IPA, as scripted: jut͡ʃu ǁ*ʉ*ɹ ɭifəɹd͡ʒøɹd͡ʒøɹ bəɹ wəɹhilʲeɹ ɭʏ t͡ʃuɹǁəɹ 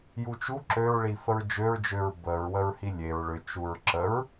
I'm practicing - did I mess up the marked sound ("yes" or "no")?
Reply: yes